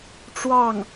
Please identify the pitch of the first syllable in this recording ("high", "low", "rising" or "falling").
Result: falling